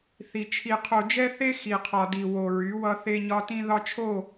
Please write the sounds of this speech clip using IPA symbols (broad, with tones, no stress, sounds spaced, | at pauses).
θ i˨ t͡ʃʰ i˨ qʰ o˨ d͡ʒ ɛ˦ θ e˦ x i˨ qʰ ɒ˨ d i˨ w o˨ ɹ y˨˦ w ʌ˦ θ e˦ ɲ ɒ˦ t ĩ˦ ð ɒ˦ t͡ʃʰ o˦˨